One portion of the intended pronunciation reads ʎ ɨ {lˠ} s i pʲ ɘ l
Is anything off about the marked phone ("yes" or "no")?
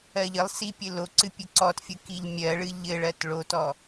no